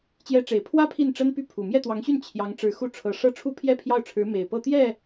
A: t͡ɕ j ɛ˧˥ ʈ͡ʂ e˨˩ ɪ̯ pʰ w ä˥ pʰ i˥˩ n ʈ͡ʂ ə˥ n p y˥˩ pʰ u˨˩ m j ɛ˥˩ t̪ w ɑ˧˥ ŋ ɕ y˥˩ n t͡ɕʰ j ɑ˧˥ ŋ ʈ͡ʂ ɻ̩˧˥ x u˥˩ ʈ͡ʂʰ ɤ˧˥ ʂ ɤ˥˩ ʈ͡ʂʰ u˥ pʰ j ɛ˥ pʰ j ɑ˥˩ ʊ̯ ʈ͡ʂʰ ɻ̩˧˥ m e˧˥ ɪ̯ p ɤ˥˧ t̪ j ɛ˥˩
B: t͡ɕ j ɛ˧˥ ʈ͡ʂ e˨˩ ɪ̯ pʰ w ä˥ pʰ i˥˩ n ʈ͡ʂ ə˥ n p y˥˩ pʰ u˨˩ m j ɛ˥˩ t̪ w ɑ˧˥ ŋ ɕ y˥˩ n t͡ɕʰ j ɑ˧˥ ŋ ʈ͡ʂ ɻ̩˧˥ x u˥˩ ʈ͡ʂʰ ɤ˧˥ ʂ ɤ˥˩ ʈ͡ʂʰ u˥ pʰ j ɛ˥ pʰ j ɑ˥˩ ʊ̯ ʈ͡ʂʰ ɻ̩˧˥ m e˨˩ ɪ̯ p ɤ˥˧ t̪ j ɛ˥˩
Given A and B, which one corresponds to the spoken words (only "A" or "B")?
B